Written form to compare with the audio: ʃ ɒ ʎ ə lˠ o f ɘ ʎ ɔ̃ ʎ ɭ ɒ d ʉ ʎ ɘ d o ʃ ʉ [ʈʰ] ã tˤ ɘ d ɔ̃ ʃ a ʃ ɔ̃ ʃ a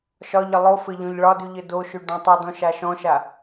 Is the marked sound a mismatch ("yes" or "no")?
yes